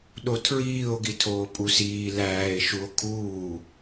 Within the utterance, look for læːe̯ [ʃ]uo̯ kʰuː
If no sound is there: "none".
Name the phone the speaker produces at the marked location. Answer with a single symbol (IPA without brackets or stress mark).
ʃ